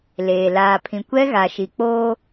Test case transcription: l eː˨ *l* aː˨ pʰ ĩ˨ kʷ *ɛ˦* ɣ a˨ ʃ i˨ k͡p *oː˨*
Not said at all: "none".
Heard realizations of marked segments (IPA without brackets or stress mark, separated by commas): l, ɛ˦, oː˦